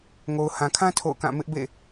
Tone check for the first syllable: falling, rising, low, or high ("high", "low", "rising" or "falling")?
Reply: low